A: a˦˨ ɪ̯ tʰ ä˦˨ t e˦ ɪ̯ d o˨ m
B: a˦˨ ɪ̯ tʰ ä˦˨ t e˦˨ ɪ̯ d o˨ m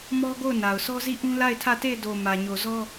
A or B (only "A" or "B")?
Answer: B